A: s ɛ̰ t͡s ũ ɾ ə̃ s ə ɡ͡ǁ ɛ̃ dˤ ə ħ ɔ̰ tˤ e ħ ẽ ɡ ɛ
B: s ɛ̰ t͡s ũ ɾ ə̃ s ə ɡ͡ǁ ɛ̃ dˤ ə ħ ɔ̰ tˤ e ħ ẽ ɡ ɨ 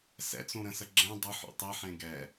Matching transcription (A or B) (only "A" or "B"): A